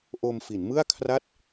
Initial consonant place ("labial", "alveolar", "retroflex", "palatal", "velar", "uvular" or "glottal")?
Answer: glottal